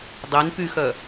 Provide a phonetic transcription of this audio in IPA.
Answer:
dˤen pyxœ

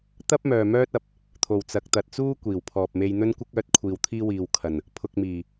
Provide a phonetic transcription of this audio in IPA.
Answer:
t̪ɐ˥p̚ mœː˨mœː˥t̚ɐ˨p̚ | t̪ʰo˨˩wt͡sɐ˨k̚ t̪ɐ˨t̚t͡suː˥ kʷiː˨˩wpʰɔː˨p̚ me˧jn̪ɵ˥nkʷɪ˥k̚œː˨˥t̚ kʷʰiː˨wt̪ʰiː˥wiː˨w kʰɐ˨˩n | pʰʊ˧k̚miː˨˩

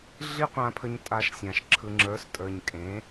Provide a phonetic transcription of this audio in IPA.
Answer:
ɮi˦qʷã˧pʰə˧ɲ tʼa˧ʃsʲã˨ʃ ǁʰɯ˨ŋ͡ǁə˞˨˦stʼə˞˨ɲ kʼẽ˨˦

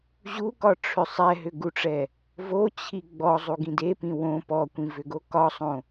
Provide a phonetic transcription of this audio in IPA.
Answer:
ʑukɒʈ͡ʂʰʏ sˤɛɦʏɡuʈ͡ʂɛ | vot͡ɕʰi ɡ͡bɔzˤuɡĩ depĩ wõ pɔkʷĩvʏɡo kɒsˤõ

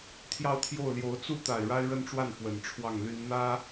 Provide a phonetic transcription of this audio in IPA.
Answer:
t̪ʰjɑ˥˧ʊ̯t̪ʰjo˥˩ʊ̯ljo˧˥ʊ̯ t͡su˥˩t̪a˨˩ɪ̯ ɻa˥ɪ̯ɻə˥˧nʈ͡ʂwa˥˩n fwə˨˩nʈ͡ʂʰwɑ˥˩ŋly˥n n̪ä˥

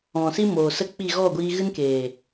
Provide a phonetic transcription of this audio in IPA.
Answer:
ɔ̃˨si˦moː˨sə˦ k͡pi˦˨ ɣɔ˦˨ɡʷiː˧ ɣɨ˦nkeː˨

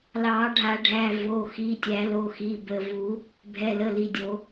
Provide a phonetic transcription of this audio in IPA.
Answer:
lɑ˨˩˦ɖʱa˨˩˦ɖʱæ˩˧˩vo˩˧˩ xi˩˧˩tʲæ˨˩˦lo˩˧˩xi˩˧˩ bə˩˧˩vu˨˩˦ | bʱɛ˩˧˩lə˩˧˩ li˩˧˩dʲo˨˩˦

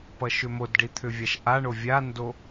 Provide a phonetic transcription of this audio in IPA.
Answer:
pʌʃʏmodɖi t̪ʰʏvʲaʃʔaɳo vʲando

